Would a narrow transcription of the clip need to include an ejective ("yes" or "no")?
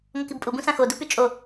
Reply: yes